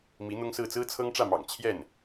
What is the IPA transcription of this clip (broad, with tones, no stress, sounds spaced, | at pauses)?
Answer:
m i˧˥ n̪ ʊ˥ ŋ s ɹ̩˥˩ t͡s ɹ̩˥ t͡sʰ ɤ˥ ŋ ʈ͡ʂ ä˥˩ m ɑ̰˨˩ ŋ t͡ɕʰ j ɛ˥˩ n